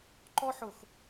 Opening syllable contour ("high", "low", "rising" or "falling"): high